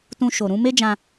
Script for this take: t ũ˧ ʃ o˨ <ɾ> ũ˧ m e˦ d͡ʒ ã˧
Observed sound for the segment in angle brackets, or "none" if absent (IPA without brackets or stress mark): ɾ